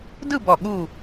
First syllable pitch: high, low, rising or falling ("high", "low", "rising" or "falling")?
falling